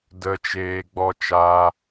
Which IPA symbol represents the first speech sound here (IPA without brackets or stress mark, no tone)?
d